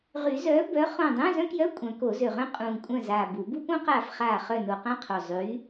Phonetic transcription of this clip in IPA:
ʁy˨˩˦zœː˨˥ bœ˨˥ χõ˦˨ dˤũː˧˥˧zœ̃˥kjœ˧˥˧ kʷʼœ̃˨˩˦ko˨˩˦zø˨˩ʁœ̃˥ qʼũː˨˩kʷʼœ̃˦˨zaː˨˩ bu˨˩˦ bu˥põ˥qaː˦˨f χaː˦˨ χœ˦˨ no˨˩qã˥qʰo˨˩ zˤy˨˥

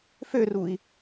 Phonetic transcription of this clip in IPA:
førui̯

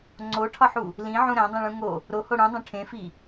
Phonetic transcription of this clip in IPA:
ŋ͡ǀoʈʰɒħu | lĩʕũ ɾæ̃dˤĩɭũ ŋo | ɾoho ɽũdˤõ ʈʰẽfi

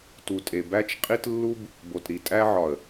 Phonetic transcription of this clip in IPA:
tu˨tʼe˨ bæ˧t͡ʃqʼi˧t lːu˦b | bo˨tɾi˨tʼæ˧ʕɒ˨ə̯

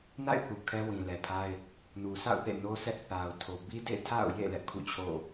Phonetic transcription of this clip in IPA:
na̰˦˨ɪ̯θu˨ kʰɛ˦wĩ˨lɛ˨pʰa˦ɪ̯ | nu˨sʰa̰˦˨ʊ̯ θḛ˦˨no˦sɛ˦ʔ θa˨ʊ̯tʰo˨ bi˦dḛ˦˨ɪ̯tʰa̰˦˨ʊ̯ jḛ˦˨ lɛ˦ʔkʰṵ˦˨t͡ɕʰo̰˦˨

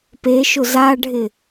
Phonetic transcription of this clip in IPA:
peʃʊ zaɖʱɪ

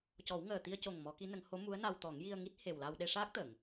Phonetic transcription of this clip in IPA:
cɔ˨˩˦w ŋəː˨˩t̪i˧ə̯co˨˩ŋ mɔ˨˩˦ki˧˥nə˨˩˦ŋ ho˧˥mu˧˥ə̯na˧wt̪ɔ˨˩˦ŋ ji˧ə̯ŋi˦˥t̚ he˨˩wla˧w ɗe˧ʂaː˦˥k̚t̪ə˨˩˨ŋ

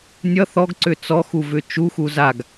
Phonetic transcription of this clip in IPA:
nʲʌ θɔɡǀʏ t͡sɔxuvʏ t͡ʃuxu zaɡ

